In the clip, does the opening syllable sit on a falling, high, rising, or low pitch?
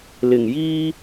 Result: low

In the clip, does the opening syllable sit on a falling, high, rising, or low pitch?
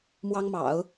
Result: high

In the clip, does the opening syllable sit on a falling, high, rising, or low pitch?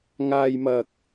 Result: low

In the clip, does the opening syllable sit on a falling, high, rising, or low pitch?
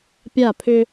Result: falling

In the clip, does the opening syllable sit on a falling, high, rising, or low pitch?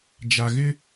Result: low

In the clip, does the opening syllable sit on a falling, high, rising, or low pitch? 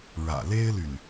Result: low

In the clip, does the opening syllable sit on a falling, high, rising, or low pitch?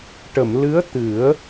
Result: low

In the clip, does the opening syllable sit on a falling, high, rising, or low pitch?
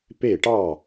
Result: falling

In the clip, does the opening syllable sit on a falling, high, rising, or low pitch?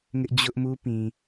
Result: high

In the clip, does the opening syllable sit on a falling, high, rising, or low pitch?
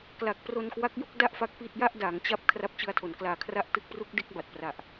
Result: low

